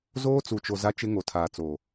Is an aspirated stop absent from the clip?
no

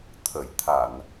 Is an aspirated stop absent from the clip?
no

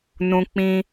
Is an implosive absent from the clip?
yes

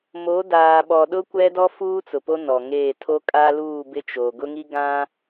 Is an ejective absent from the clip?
no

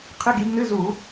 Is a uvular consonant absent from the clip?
no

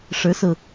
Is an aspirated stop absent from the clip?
yes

